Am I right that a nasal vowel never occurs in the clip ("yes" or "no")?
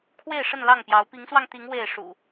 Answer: yes